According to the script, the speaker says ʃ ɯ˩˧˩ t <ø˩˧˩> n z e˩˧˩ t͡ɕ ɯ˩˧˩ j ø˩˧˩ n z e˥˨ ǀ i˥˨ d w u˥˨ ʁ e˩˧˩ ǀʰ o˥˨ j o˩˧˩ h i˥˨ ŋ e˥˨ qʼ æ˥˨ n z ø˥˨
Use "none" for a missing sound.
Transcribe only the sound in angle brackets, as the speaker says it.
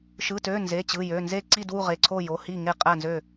ø˩˧˩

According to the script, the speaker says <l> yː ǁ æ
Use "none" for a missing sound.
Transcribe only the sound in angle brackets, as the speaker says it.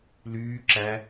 l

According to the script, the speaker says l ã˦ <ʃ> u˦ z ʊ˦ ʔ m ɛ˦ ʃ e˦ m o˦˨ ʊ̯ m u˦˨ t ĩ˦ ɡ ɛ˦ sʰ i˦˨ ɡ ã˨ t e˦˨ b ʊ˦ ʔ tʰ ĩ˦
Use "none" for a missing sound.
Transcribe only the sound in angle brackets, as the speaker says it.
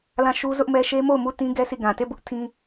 ʃ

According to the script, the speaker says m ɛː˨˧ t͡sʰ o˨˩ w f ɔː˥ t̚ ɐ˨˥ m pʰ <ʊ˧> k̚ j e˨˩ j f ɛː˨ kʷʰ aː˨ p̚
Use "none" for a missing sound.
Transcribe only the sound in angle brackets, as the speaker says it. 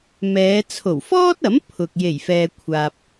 ʊ˨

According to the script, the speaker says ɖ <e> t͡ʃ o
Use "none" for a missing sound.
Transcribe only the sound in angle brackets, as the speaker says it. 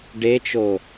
e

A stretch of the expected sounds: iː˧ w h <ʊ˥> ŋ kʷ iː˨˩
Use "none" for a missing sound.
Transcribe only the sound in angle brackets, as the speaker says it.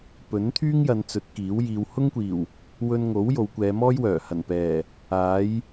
ʊ˥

